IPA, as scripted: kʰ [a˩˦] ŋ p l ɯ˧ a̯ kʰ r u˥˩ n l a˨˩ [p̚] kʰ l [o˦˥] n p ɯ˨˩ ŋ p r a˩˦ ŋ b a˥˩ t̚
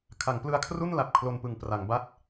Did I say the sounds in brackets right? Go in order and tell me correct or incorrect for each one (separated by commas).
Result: correct, correct, incorrect